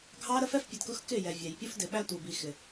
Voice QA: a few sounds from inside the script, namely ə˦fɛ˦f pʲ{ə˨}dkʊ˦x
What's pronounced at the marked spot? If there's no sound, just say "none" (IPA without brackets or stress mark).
ə˨